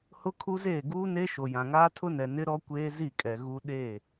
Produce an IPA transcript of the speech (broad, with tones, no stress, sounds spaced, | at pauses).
h ʊ˦ kʰ u˦ z eː˦˨ ɡ uː˦ n e˦ ʃ o˨ j ã˨ ŋ aː˦ tʰ ʊ˦ n ɛ˨ n ɪ˦ ɾ ɔ˦ kʷ eː˦ z i˦˨ kʼ ɛ˨ ɣ u˦ ɗ eː˦˨